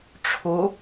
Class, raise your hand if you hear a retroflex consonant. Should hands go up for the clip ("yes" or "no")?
yes